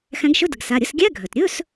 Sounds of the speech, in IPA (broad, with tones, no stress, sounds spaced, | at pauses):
x æ̃˨˦ ɡ ʃ ɵ˧˥˧ d ə˩ ɡ s a˩˧˩ ɾʲ ə˧˥˧ s ɡʲ æ˧˥˧ ɡʱ œ˩ t ɾʲ ɵ˧˥˧ s